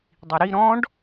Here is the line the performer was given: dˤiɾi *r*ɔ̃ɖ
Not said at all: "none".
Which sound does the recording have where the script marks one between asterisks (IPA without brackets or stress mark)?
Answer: ɾ